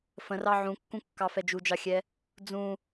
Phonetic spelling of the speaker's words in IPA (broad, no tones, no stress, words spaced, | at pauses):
fə̃rɑ ʕũkːũkːɑ fɛd͡ʒud͡ʒɑxʲɛ | d͡zũ